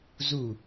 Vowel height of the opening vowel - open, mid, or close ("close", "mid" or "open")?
close